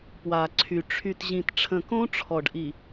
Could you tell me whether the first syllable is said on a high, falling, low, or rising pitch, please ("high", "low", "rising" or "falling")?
low